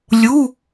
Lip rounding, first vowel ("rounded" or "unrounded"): rounded